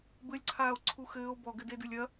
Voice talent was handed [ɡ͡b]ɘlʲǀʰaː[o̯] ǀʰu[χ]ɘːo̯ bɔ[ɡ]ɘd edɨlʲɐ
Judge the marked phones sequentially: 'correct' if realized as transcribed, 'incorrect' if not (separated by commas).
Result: incorrect, correct, incorrect, correct